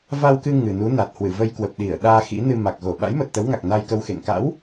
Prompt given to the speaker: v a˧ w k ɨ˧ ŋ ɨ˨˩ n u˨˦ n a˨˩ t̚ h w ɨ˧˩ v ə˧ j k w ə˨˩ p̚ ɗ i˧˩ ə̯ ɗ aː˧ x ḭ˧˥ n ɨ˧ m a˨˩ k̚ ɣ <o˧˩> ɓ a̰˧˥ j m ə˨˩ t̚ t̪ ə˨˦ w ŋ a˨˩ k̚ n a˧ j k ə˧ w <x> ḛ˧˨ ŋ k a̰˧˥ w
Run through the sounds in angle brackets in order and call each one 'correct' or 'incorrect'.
correct, correct

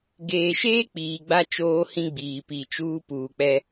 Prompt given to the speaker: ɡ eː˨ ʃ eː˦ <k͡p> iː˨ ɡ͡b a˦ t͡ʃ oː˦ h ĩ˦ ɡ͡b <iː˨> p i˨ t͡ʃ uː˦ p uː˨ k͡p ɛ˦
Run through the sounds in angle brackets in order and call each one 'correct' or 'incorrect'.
correct, correct

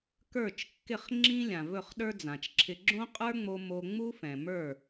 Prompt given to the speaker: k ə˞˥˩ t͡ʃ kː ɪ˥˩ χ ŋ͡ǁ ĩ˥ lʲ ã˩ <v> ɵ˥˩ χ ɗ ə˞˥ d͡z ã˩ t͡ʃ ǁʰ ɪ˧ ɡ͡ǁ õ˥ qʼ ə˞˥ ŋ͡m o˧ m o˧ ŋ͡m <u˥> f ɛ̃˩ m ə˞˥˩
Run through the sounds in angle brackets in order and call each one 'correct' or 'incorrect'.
correct, correct

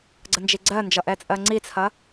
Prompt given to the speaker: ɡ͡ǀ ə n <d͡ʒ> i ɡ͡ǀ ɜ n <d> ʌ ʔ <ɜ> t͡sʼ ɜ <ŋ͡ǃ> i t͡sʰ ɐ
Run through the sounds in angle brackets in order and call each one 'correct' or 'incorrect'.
correct, incorrect, incorrect, incorrect

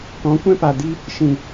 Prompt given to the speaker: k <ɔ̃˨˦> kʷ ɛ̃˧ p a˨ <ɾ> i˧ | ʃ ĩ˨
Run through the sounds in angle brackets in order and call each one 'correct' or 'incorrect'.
correct, incorrect

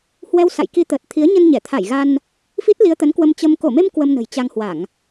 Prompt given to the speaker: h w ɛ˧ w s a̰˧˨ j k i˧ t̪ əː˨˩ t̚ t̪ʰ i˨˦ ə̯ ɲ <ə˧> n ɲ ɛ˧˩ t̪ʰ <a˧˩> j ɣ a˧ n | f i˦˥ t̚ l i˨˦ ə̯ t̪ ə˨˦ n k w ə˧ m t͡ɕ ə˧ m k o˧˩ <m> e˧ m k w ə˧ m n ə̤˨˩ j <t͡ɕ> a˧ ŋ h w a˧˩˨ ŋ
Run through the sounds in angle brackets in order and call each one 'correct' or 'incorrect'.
correct, correct, correct, correct

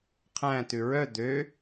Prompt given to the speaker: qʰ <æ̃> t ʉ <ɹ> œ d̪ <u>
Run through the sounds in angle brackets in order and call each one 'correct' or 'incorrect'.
correct, correct, incorrect

